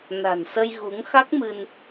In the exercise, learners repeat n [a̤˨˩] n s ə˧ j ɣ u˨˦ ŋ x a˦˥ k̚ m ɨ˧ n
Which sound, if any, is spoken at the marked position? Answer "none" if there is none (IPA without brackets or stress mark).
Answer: a̤˨˩